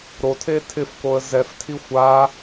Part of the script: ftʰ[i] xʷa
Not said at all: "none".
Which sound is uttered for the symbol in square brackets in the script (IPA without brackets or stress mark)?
i